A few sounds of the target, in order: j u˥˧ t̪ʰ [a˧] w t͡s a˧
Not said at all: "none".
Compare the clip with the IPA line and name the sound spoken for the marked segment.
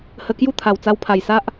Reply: a˨˩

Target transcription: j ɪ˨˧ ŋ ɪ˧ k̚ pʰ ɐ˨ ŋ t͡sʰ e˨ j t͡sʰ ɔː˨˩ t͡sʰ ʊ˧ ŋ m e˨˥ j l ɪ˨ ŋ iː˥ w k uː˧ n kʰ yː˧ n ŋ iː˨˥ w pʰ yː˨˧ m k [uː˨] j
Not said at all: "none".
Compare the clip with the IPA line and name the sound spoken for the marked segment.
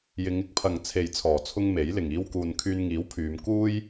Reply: uː˥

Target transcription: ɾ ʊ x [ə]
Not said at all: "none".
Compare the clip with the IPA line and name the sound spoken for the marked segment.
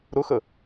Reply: ə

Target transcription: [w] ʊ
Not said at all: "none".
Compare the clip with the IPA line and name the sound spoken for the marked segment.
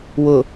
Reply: w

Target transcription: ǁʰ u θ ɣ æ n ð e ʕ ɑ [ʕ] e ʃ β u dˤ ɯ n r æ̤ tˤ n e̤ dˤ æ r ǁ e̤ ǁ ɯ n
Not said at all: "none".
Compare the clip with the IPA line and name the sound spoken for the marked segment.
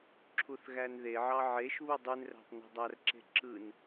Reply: ʕ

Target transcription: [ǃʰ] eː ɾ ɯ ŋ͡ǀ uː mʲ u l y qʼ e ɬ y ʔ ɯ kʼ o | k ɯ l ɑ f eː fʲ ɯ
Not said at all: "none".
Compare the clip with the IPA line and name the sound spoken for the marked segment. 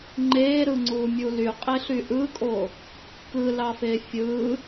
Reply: ŋ͡ǃ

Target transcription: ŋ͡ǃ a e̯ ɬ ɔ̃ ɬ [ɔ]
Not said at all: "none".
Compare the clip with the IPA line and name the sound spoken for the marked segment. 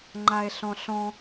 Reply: ɔ̃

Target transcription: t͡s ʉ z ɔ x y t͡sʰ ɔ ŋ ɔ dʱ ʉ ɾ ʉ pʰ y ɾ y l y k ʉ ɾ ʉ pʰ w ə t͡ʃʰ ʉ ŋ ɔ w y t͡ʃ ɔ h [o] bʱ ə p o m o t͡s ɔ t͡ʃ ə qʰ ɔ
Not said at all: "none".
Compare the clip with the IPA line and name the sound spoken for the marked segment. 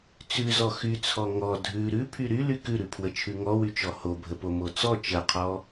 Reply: o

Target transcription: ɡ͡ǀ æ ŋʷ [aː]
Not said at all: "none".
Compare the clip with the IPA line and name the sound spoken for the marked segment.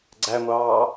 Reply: ɑː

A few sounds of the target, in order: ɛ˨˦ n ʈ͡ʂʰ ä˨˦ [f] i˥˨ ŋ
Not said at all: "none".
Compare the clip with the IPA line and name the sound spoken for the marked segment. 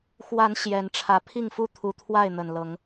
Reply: pʰ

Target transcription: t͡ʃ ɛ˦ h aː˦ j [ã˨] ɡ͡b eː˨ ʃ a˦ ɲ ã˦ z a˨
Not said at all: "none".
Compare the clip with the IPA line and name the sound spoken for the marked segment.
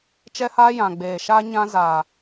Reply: ã˨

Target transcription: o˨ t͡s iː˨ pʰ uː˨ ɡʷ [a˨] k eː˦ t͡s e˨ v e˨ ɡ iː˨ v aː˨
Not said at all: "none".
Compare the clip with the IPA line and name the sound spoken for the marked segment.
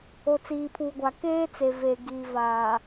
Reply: a˨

